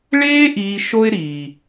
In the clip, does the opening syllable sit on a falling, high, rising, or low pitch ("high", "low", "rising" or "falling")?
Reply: high